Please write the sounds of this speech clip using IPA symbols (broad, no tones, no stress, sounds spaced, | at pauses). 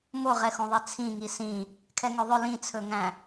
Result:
m o ʁ ɛ x õ ðˤ ɛ t͡sʰ ĩ ŋ i s ĩ | kʰ ɛ ŋ ø ðˤ ɵ l ĩ t͡sʰ ɵ ŋ æ̃